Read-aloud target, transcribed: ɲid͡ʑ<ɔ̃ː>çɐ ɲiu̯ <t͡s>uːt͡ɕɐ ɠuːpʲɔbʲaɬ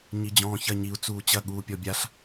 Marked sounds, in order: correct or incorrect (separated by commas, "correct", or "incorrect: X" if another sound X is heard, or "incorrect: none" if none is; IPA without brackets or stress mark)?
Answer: correct, correct